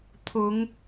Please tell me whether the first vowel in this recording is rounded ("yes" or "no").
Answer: yes